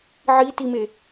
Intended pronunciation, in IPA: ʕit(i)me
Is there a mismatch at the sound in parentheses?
no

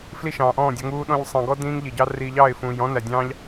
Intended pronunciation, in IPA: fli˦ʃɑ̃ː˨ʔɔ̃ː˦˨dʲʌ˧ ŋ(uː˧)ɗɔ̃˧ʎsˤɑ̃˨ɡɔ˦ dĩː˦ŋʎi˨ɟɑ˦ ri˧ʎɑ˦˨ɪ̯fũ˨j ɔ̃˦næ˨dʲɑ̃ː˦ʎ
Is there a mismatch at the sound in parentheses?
no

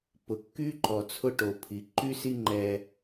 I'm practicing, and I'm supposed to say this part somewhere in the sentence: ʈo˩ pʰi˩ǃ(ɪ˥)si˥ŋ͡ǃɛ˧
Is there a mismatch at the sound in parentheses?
yes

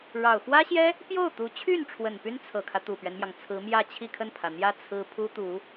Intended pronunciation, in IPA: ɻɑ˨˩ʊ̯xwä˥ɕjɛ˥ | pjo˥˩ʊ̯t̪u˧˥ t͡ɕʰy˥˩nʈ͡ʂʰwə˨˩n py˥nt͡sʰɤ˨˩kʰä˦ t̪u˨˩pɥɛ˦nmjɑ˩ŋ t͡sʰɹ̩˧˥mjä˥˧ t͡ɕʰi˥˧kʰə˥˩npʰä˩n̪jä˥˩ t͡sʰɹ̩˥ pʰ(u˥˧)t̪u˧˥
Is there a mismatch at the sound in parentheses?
yes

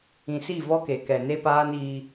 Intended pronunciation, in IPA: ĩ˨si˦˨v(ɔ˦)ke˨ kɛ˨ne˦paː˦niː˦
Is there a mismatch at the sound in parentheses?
no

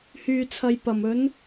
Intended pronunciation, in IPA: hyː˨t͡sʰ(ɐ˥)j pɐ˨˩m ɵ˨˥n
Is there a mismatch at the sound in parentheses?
yes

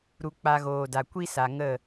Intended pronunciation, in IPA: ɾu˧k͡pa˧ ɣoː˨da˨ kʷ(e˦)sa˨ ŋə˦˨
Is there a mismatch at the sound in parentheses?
yes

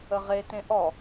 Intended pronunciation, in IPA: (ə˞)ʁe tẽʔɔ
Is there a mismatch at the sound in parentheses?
yes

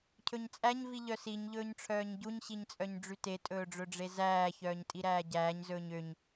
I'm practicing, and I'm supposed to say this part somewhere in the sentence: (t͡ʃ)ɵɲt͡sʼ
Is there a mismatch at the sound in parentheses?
yes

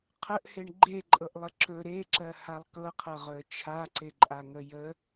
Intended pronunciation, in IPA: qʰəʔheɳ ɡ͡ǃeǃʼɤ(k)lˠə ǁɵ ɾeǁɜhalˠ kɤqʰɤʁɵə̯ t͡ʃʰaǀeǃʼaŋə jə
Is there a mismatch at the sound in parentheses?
yes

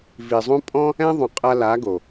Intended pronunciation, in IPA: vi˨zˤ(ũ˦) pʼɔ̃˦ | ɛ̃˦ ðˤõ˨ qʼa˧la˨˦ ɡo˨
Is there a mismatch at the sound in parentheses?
no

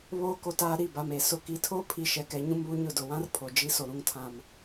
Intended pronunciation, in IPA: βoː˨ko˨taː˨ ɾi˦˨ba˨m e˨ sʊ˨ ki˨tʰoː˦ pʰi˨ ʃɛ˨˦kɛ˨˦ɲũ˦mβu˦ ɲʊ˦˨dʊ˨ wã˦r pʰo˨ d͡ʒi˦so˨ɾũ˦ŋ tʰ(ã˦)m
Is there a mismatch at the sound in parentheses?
no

